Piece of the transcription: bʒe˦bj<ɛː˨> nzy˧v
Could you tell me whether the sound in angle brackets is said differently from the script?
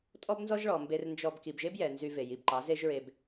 yes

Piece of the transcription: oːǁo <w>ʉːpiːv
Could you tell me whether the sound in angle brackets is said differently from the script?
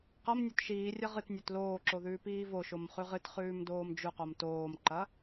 yes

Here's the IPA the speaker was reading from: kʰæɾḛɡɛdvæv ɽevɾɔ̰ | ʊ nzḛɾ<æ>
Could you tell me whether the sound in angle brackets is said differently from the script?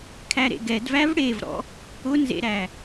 no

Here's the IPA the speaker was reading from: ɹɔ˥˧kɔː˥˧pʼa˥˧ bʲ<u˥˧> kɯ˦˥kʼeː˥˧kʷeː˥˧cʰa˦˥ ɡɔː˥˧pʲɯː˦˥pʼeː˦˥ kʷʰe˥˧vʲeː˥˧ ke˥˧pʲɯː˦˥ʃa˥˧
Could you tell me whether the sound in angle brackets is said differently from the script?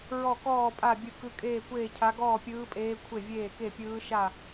yes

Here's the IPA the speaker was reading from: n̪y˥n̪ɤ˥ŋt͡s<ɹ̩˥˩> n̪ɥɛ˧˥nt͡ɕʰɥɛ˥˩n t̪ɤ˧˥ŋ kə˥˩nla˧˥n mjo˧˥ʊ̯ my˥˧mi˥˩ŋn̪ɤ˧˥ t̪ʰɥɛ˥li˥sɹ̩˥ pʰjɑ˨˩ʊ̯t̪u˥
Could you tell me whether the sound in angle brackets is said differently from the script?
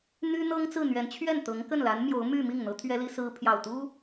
no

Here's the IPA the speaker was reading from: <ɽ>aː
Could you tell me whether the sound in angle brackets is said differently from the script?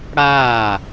no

